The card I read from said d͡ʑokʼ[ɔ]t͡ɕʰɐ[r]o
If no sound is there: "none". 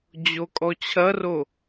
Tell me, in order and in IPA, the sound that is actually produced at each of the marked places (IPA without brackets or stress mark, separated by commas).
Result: ɔ, r